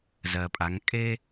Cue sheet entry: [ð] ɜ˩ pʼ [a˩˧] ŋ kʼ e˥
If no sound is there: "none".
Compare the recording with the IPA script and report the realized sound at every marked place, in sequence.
z, a˩˧

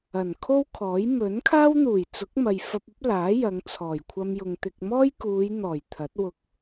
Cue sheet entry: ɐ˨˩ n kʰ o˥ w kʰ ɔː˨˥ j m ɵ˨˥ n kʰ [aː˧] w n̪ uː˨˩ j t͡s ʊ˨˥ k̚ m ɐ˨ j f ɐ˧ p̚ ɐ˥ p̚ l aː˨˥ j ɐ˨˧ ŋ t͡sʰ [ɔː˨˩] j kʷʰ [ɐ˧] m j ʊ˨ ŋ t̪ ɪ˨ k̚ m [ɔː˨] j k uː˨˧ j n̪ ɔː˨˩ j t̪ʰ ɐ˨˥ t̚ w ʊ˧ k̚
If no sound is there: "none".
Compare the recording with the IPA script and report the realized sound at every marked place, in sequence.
aː˥, ɔː˨˩, ɐ˧, ɔː˥

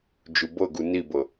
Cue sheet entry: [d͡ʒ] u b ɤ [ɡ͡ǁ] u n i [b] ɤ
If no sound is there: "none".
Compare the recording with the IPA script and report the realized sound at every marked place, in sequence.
d͡ʒ, ɡ, b

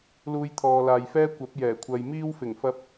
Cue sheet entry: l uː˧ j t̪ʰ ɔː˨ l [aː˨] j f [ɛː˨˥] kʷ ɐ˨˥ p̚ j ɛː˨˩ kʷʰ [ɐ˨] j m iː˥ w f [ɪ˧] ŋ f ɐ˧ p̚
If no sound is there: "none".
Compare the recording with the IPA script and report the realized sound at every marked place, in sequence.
aː˨, ɛː˥, ɐ˨, ɪ˨˩

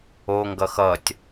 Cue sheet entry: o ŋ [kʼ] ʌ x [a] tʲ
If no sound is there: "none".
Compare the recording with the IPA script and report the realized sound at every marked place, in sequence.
ɡ, ʌ

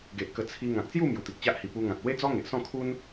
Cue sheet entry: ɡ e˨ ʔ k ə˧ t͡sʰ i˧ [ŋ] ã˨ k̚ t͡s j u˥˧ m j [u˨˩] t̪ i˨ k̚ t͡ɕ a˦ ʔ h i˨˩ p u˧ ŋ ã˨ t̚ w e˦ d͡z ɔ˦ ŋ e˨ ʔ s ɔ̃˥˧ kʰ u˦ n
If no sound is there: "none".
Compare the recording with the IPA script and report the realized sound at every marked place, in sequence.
ŋ, u˨˩

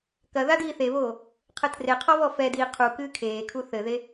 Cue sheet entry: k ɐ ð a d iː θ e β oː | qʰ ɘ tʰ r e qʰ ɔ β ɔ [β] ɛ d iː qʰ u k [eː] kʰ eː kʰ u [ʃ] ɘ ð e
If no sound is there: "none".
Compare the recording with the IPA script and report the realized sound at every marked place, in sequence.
f, ɨː, θ

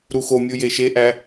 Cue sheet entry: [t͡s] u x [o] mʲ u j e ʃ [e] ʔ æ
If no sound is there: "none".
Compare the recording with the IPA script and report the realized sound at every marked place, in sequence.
ɾ, o, e

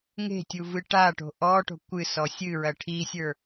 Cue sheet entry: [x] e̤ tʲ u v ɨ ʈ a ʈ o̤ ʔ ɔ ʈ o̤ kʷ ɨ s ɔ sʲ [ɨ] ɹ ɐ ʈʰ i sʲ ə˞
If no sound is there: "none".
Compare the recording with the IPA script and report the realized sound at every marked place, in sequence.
ŋ, ɨ

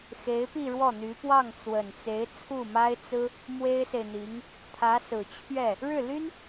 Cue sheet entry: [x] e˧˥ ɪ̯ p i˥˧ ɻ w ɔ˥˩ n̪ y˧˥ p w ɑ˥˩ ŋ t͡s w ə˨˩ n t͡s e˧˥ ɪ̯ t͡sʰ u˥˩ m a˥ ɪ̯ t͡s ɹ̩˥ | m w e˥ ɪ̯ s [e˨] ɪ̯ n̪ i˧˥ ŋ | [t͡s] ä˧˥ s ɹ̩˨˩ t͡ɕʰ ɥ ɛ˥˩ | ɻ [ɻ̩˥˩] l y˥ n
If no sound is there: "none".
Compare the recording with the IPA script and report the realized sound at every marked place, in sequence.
x, e˨, t̪ʰ, ɻ̩˥˩

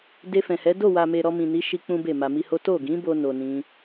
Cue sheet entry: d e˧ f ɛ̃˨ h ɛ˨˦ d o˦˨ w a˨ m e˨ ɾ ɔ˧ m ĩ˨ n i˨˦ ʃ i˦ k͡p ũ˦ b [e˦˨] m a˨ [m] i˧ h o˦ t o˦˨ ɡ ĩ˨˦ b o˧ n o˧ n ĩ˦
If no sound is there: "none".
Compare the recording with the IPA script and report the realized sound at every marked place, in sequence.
e˦˨, m

